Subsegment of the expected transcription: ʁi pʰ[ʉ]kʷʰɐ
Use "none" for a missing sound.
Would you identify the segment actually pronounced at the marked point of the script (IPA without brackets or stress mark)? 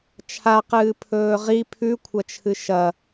ʉ